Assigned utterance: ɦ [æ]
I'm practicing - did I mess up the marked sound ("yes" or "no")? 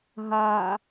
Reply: yes